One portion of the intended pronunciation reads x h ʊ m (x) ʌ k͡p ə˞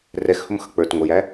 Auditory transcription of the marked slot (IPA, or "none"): x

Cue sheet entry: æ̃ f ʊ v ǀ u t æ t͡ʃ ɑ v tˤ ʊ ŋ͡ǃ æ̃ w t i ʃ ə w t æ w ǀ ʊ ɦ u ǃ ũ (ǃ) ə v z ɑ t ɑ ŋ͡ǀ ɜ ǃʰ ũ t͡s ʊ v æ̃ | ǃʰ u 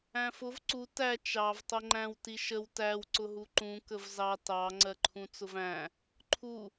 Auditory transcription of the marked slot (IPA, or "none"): k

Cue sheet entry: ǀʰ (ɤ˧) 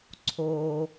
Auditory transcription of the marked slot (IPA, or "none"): o˧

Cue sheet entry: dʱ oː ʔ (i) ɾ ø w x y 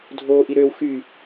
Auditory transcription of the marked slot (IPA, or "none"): i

